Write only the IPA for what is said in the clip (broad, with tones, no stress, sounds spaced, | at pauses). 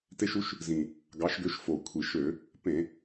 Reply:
t e˦ ʃ u˨˥ ʃ | z ĩ˨˩ | ɡ ɑ˨˥ ʃ ɡ ø˨˥ ʃ f o˨˩ kʷʰ i˨˩ ʃ ø˧˩˧ | p ẽ˧˩˧